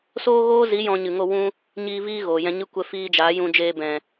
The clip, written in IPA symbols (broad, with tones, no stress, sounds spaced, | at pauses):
s oː˦ ɣ oː˦ z i˨˦ j ɔ̃˧ ɲ ɨ˨ ŋ o˦˨ w ũ˦ | ɲ iː˨ v iː˦ ɣ oː˨ j ɛ̃˧ ɲ ɨ˧ kʷ ɛ˧ f iː˧ d͡ʒ aː˨˦ j ũ˧ d͡ʒ eː˧ b ɛ̃˨